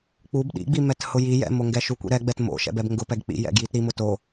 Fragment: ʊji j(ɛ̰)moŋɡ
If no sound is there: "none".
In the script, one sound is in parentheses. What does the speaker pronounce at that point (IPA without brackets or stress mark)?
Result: ɛ̰